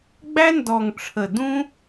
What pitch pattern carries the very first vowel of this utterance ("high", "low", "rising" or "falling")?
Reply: high